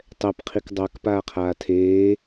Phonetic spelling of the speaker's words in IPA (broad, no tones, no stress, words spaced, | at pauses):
tˤɛpqʰik dˤak paːqʰaːtʰeː